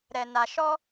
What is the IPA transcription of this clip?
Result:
ɾɛ˨na˨ ʃɔ˧

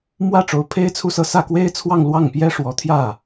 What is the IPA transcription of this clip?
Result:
mwä˥˩ ʈ͡ʂo˧˥ʊ̯pʰe˥ɪ̯t͡sʰu˥˧sɤ˥˧ sä˥˩kwe˥ɪ̯t͡sʰwɑ˥˧ŋ lwɑ˥˩ŋpjɛ˥ ʂwɔ˧˥ t̪ʰjä˥˩

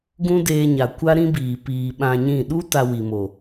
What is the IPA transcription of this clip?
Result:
ɡũ˦deː˧ɲa˨kʷa˦ ɾĩ˦biː˨ piː˨ ɓã˧ɲĩ˦˨ ɗu˦ ta˧wi˨mo˨

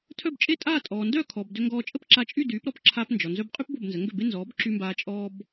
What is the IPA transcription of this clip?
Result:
tʰœ˥˩bt͡ʃʼe˥tʼaː˥˩ tʼɔː˩ndœ˥˩kʰɔ˩b dø˧ŋɡɔː˧t͡ʃʼə˥p ǁa˧t͡ʃʼy˥˩ dyː˩˥pɾɔ˥p ǁʰa˧pnd͡ʒɔ˩ nzœ˧bqʼy˥p bo˥˩bnzə˩˥ŋɡø˥˩be˥ nzɔː˩˥bǁy˧mbaː˧ t͡ʃʼɔː˥b

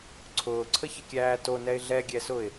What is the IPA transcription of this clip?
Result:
ǀʰʊːǀʰəçəkʲæː tonɛɪ̯ ɮɛɡʲɛsʊɪ̯

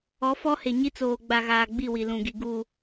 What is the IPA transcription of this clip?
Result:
ɔ˨˦ fɔ˦he˨ɲi˦ t͡soː˨ɡ͡ba˨ɣaː˨ ɡ͡bi˦˨wi˨lũ˨ɡi˨ ɡu˨

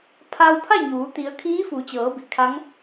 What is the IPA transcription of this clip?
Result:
pʰa˧wpʰa˥˨ɲuː˩˧ t̪i˩˧ə̯ kʰiː˧˥fu˩˧t͡ɕɤː˩˧bi˩ kʰa˧˥ŋ

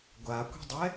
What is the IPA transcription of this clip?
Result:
ɡʷakʷi̤dˤɛ

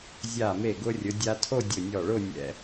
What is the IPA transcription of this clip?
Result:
zʲa˧˩me˧˩ɡʊ˧ rʲʊ˩˧dʲa˧tʰo˥˧ dʲʊ˧˩nʲɔ˧˩ɭʊ˥˧ nʲɛ̰˧

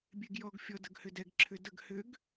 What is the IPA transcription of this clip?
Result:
bʲeɡjɔɡfʲɔ dəɡhʏdɛɡ ǁʰʏdəɡ hʏɡ

